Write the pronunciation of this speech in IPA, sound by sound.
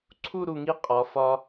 ǀʰu˥˧ɾu˧˩ŋi˧˥ qʼɒ˩˧ fɒ˧

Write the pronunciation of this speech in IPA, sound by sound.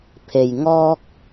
pʰe˩jŋɔː˧k̚

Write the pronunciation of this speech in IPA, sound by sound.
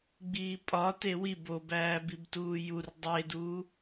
ɡ͡biːpʼɒ tewi bobæːbib tuːjur dˤeduː

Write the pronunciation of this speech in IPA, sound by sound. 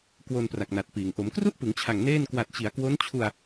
kwo˧npra˨˩k̚na˨˩t̚piː˩˦ŋ ʔo˩˦mkru˥˩ʔpɯ˩˦ŋt͡ɕʰa˨˩ŋ neː˥˩n kwa˨˩t̚t͡ɕi˩˦a̯kwo˦˥nt͡ɕʰu˧a̯

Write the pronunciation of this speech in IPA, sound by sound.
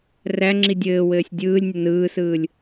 ræŋ͡ǁi dʲɘːwɘːsʲ dʲɯːlʲnʲə nɯːsɯːlʲ

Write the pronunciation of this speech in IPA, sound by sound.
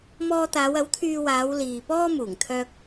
mɔː˧t̪aː˨˧wɐ˨˥w t̪ʰyː˧waː˨˧w liː˨pɔː˥muː˨˩ŋ t̪ʰœː˧k̚

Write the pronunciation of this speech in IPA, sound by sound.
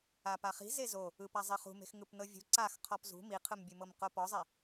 apaχi̤ zezo | ɯpa zˤiχṳme̤x ŋɯpnɤvʲṳ ǀax qʰɔpzṳ miqʰɯmbʲɯmɤm qopɔzˤe

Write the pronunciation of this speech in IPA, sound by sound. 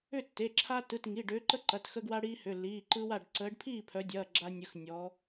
ʏ˥˨tːe˩˧˩ǁʰa˦ tɯ˩˧˩tŋi˩˧˩ ɖʏː˨˦ǃə˦ǃɐ˩˧˩t xə˦ɡwa˦ɽiː˦ hʏ˩˧˩lːiː˩˧˩ǃɯ˦wa˥˨ɖ ǀəː˨˦ɖpʰiː˥˨pʰœ˨˦dʲɐː˩˧˩ ɡ͡ǁa˦nʲɯ˨˦x nʲɔ˨˦

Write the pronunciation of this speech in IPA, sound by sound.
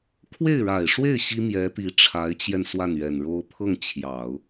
kʰwe˥˩ɪ̯ɻa˨˩ɪ̯ʂwe˥˩ɪ̯ ɕi˥mjɛ˧˥t̪i˧˥ ʈ͡ʂʰa˧˥ɪ̯t͡ɕjɛ˧n swa˥˩nɥɛ˨˩nɻo˥ʊ̯ pʰɤ˥˩ŋt͡ɕʰjɑ˨˩˦ʊ̯

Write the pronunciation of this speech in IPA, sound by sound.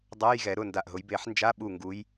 dˤa˧˥˧j ɣɛ˨˩˦ɾʊ˩˧˩nda˧˩ʔɦʊ˨˦j be˨˩˦ħnd͡ʒa˧˥˧ɓu˧˩ ŋɡu˨˦j

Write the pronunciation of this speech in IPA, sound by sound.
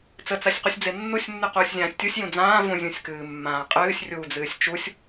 t͡sət͡sasʲqusʲd͡ze nːusʲnːɨquːsʲzʲãːsʲ tʲusʲjũ d͡zãː vũzʲũsʲkɨːmːãː qʼɨːsʲrʲuːd͡zɨːsʲ t͡ʃusʲ

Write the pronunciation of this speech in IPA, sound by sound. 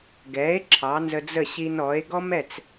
ɡɛ˩˥e̯ ǁʰɑ˩˥nzə˧d͡zə˥˩ ɕi˧nɔ˩˥e̯ ɡɔ˥mɛ˥˩t͡s

